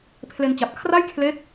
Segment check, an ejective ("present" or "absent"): absent